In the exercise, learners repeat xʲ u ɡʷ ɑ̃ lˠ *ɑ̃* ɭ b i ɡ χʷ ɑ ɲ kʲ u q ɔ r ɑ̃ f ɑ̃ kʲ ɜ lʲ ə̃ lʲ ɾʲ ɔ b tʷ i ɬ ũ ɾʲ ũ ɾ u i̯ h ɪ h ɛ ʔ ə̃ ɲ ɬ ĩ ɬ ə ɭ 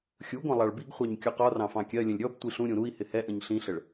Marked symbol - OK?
no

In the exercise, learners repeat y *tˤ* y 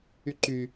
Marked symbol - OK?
no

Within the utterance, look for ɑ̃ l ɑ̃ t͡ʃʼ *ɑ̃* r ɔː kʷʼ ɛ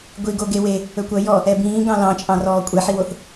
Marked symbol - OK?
yes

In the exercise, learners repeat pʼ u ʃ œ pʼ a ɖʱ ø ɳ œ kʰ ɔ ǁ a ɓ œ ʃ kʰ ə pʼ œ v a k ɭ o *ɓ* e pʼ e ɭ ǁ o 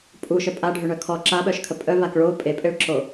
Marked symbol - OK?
no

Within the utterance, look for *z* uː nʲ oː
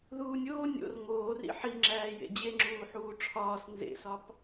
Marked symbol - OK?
no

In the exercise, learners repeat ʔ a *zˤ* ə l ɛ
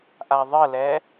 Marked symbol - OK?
no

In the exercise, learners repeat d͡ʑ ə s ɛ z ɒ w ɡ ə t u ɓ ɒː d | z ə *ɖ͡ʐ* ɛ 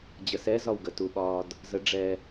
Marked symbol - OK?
yes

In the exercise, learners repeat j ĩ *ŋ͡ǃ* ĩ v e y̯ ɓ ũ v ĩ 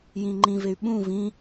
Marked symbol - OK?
yes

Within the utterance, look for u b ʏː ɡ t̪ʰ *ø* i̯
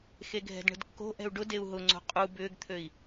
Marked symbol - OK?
yes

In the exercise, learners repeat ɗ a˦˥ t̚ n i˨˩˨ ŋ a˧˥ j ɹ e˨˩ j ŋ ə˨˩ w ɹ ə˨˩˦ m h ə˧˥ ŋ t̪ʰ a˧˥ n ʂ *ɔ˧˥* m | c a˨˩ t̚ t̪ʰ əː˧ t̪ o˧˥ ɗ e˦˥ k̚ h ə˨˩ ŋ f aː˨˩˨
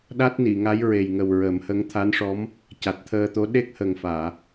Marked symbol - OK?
yes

